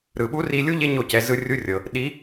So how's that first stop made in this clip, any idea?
implosive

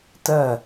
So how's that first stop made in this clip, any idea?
plain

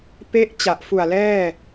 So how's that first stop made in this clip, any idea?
plain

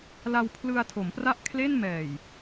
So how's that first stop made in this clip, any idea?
aspirated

